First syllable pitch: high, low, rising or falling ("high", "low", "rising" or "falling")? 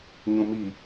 low